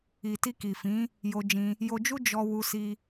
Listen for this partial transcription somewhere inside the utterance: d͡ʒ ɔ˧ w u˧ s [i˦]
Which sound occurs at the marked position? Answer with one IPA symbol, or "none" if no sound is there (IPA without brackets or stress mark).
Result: i˧